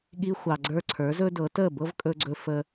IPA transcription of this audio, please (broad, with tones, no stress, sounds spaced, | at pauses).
ɠ i˧ xʷ ɑ˩ ɡ͡ǀ ə˞˧ ǀʰ ə˞˩˥ z ɵ˥ d ɤ˩˥ t ə˥˩ b ɤ˥ v kʼ ɵ˧ ɡ͡ǀ ɵ˧ f ə˧